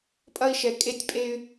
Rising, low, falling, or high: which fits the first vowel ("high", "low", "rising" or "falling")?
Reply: high